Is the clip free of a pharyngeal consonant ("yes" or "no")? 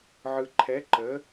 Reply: no